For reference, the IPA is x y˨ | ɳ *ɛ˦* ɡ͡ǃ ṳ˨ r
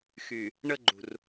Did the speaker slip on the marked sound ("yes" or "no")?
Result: yes